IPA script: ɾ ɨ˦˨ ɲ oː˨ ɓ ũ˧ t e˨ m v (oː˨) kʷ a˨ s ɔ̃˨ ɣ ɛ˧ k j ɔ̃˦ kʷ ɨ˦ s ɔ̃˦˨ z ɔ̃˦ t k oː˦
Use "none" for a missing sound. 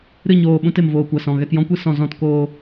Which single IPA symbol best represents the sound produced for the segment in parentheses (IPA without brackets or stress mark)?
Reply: oː˨